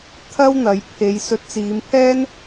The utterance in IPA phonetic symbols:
t̪ʰ ɐ˥ w n̪ ɐ˨˧ j pʰ e˨˧ j s ɵ˨˥ t̚ t͡s iː˨˧ m pʰ ɛː˥ n

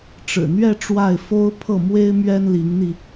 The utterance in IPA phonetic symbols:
ʈ͡ʂ ɻ̩˨˩ n̪ ɥ ɛ˥˧ ʈ͡ʂ w a˥˩ ɪ̯ f o˥ ʊ̯ pʰ ɤ˥˩ m w e˥ ɪ̯ m ɥ ɛ˥ n l i˧˥ ŋ n̪ i˧

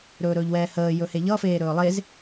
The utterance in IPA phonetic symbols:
ɾ ɵː ɾ ɵː ʎ w ɛː h əː j ɵ h e ʎ ʌ f eː ɾ ɵː lˠ e z

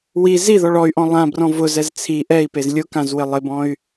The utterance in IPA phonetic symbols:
w i z i ð ɔ ɭ ɔ y̯ ʔ ɔ̃ lˠ ã b r ɔ̃ v ʊ z ɛ z t͡sʰ i ʔ ɛ i̯ p e z lʲ ʊ k ã z w ɪ lˠ ɪ b ɔ̃ y̯

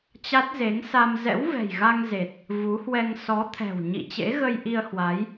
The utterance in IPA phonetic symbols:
t͡ɕ a˦˥ t̚ z e˨˦ ŋ s a˧ m z ɛ̰˧˥ w v ɛ̤˨˩ j ɣ a˧ ŋ z e˨˩ t̚ | v u˨˦ h w ɛ˧ ŋ s ɔ˨˦ t̪ʰ ɛ̤˨˩ w ɲ ḭ˧˨ t͡ɕ ḛ˧˥ ɣ ə˧ j ʔ i˧ ə̯ h w a˨˦ j

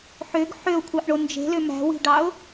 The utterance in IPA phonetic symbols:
ħ ø ɡ ħ ø ʊ̯ kʷʰ ɑ ʔ ɳ o n d͡ʒ e̤ l ø m æ̤ w i̤ ɖ ɑ ʊ̯

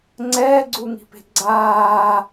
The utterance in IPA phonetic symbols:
ŋ͡ǀ ɛː ɡ͡ǀ u ŋ i̤ p e̤ ɡ͡ǀ aː

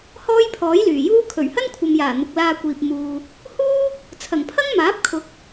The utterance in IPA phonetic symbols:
h ɔː˥ j pʰ ɔː˨˥ j l yː˨˩ j uː˥ kʰ ɵ˨˩ ɥ h ɐ˥ n kʷʰ ɐ˨ m j aː˨˩ n̪ ʊ˨ k̚ l aː˧ kʷ iː˨ p̚ m uː˨ | h uː˥ | t͡sʰ ɐ˨˩ ŋ pʰ ɐ˥ ŋ m aː˨˥ p̚ kʰ ʊ˨˥ k̚

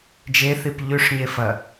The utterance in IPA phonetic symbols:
d͡ʒ e θ i p ʎ ʉ ʂ ɲ e f ɐ

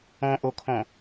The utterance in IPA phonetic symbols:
ɔ̃ ʔ o kʰ ɔ̃

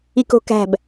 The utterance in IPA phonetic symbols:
i k o̤ k æ̤ b

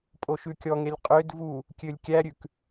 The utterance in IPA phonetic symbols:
pʼ o ʃ ʉ kʲ ɔ ŋ e lʲ qʼ ø d v u | kʲ ø lʲ kʲ æ ɾʲ ʉ k

